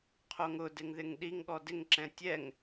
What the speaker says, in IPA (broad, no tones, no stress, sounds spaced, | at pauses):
qʰ o ŋ ʊ d ɪ ŋ ð ɪ ŋ ɗ i ŋ ɠ ɔ d ɪ ŋ ǁ ɛ̃ tʲ ɛ ŋ